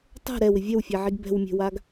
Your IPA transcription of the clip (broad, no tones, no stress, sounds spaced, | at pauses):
tˤ ɛ̤ ɾ ɛ w ɪ vʲ ɛ w fʲ ɛ ʕ i ɡ b ɛ̤ w mʲ ɛ̤ w a ɡ